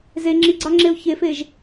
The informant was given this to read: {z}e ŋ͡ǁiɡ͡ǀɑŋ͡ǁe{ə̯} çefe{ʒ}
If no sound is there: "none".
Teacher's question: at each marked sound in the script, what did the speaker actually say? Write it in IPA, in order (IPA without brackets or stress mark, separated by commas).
z, ʊ̯, ʒ